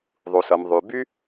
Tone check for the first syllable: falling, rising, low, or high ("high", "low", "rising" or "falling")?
low